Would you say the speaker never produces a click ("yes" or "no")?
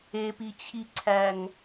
no